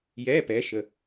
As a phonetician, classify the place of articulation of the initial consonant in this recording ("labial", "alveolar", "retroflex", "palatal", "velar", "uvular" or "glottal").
palatal